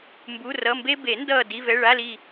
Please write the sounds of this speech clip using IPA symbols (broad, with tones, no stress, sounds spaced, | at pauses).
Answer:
m b u˧˥˧ r ʌ˧˥˧ m b e˥ b e˨˩˦ n d ʌː˦˨ d i˧˥˧ v ɛ˧˥˧ ɭ a˧˥˧ l i˦˨